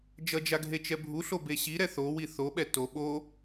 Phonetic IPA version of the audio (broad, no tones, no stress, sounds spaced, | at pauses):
d͡ʒ ʌ d͡ʒ a ɡʱ e t͡ʃ ɛ bʱ u ɬ o b e ɕ i ɾ ɛ θ o w i θ o ɓ ɛ t o ɓ o